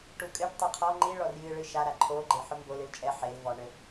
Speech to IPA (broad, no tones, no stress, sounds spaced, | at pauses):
ʈ u kʼ ɘ ʈ tˤ ɨ qʰ ɔ ŋ͡ǃ i ɭ ɔ r j ɨ ɭ ɨ ʃ a ɾ a ǃʰ o ɡ͡ǃ e ħ o m b o l ɨ l t͡ʃʼ ɛ ħ e l v ɔ ɳ ɘ